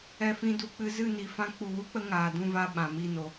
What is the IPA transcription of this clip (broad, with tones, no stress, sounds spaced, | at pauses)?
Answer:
ɛ˨ f ĩ˨ d u˨ k͡p ɨ˧ z ɨ˦˨ n i˨ f ã˧ k͡p u˨ w u˦ k͡p ə˧ ŋ aː˨ d ũ˦˨ v a˦˨ ɓ ã˨ m i˦˨ n o˧